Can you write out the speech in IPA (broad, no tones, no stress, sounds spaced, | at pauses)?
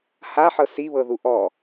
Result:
h a ħ ɤ s i β ɤ ð u ʔ ɔ